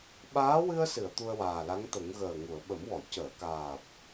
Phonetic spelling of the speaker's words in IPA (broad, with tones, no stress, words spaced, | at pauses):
ɓaː˧˥wɨ˧ə̯sɨ˨˩˨ə̯ t̪u˧ə̯waː˨˩la˧˥ŋt̪ə˨˩˦ŋ ɣəː˨˩ŋu˨˩˨ə̯ ɓə˨˩˦mwɔ˨˩˨ cəː˨˩˨kaː˨˩p̚